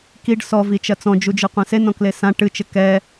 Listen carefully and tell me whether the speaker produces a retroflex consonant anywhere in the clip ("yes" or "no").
yes